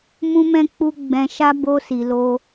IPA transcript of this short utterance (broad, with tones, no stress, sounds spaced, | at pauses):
m ũ˦ m ɛ̃˦ k͡p u˦ ɡ͡b ɛ̃˧ ʃ a˦ b o˧ s i˨ l o˧